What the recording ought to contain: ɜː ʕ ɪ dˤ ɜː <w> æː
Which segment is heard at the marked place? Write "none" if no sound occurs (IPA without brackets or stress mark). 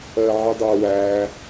w